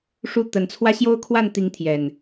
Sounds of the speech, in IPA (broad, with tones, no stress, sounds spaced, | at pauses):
ʂ u˥˨ t̪ ə˨˦ n t͡sʰ w ä˦ ɕ j o˦ ʊ̯ kʰ w a˥˨ n t̪ i˨˦ ŋ t̪ʰ j ɛ˨˩ n